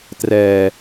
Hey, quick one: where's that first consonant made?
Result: tongue tip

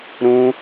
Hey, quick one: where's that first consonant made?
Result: tongue tip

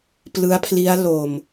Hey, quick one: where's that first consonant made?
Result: lips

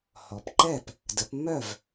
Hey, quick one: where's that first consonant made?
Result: throat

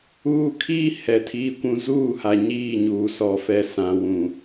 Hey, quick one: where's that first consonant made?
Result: velum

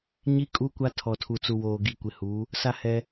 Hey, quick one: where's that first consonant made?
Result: palate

